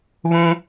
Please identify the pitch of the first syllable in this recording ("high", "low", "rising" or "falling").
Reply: high